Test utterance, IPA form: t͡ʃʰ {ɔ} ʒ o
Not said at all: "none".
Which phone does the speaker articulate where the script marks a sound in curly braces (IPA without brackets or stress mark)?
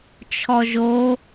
ɔ